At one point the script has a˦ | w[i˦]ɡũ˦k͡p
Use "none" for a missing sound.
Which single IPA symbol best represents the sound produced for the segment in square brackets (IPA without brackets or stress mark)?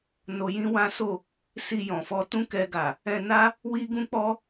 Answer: i˦